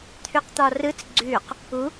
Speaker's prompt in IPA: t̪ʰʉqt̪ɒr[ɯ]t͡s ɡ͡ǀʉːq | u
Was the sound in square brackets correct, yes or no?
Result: yes